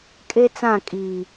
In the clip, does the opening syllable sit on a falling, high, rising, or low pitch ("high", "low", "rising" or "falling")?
high